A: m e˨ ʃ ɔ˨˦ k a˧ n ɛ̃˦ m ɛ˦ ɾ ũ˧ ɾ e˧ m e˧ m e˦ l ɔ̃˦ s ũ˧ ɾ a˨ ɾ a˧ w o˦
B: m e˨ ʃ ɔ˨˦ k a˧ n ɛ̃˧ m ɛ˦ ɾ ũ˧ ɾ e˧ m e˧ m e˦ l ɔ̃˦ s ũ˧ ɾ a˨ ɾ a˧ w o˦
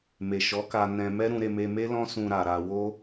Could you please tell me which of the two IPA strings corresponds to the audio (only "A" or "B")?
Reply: B